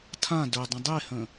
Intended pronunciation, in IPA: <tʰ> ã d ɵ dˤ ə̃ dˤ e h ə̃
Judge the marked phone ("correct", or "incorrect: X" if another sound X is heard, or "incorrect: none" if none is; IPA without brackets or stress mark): correct